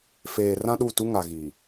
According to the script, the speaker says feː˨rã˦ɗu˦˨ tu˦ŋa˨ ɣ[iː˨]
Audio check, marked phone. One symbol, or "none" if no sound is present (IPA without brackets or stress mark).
i˨